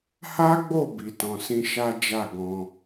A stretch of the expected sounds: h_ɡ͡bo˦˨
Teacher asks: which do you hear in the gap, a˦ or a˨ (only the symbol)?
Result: a˦